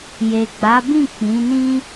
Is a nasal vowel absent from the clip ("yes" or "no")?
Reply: no